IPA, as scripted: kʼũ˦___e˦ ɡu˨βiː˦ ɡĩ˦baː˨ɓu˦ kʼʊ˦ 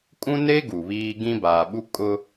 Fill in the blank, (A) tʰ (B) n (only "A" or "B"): B